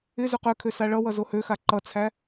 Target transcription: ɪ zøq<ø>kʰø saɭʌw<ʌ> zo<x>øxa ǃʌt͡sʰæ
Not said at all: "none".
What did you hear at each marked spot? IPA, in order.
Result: ø, ʌ, h

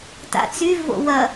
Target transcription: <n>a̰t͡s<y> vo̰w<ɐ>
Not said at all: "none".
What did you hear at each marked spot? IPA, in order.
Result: t, y, ɐ

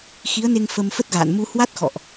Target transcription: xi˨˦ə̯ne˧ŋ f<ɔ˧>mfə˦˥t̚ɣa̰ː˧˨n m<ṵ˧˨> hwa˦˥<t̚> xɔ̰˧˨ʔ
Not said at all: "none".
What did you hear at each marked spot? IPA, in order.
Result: ə˧, u˧, t̚

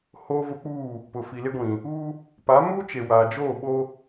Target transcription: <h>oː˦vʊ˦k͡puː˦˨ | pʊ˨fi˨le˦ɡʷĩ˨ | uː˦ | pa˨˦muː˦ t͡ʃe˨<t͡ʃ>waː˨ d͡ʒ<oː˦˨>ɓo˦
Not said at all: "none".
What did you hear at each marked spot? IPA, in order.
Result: h, none, oː˦˨

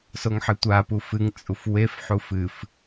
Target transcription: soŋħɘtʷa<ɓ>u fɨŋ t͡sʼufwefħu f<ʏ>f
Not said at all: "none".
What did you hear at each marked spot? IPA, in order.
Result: p, ɨ

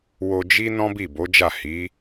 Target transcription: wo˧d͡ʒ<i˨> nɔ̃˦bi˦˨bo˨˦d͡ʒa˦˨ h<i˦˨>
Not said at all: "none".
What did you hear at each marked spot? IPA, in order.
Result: i˦, i˨˦

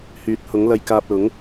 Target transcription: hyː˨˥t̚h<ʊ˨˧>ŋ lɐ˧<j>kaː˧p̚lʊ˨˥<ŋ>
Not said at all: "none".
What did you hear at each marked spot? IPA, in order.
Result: ʊ˨˥, j, ŋ

